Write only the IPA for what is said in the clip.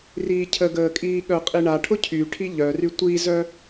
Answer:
riːcʰəɡəːkʼiː ɠœqʼiɳa ʈʰʊcʰyʈʰi ʎœry tʷizœ

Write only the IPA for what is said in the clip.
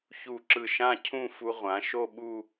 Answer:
çu˧˩ǁɯ˧˩ʃã˥˧ cʰũ˥˧ fu˧ʁʷã˩˧ʃo˥˧ɓu˥˧

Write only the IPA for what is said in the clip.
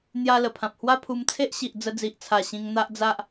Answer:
n̪ja˧lə˨˩pʰã˨p̚ hwa˦pʰu˧mt͡sʰe˦ʔɕi˨ʔ d͡zə˧d͡zi˨ʔt͡sʰa˨˩ ɕĩ˧ŋn̪a˦ʔd͡za˦ʔ

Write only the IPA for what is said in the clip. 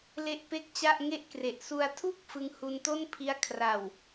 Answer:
le˥˩ʔpe˥˩k̚t͡ɕa˥˩ʔ ŋe˦˥ʔkre˨˩ʔsu˧a̯ tʰu˥˩k̚ fɯ˦˥ŋhu˧nto˥˩npʰi˦˥a̯ kʰra˨˩w

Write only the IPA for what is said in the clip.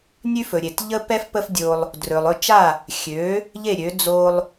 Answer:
nʲʉ˥fɵ˩ɾʲe˩t ʎə˥pɛ˥f pə˥fdʲo˧lˠ | drɵ˩lˠɵ˥˩t͡ʃa˥˩ | xʲø˩˥ | ʎe˥˩ɾʲø˩˥ d͡zo˧lˠ

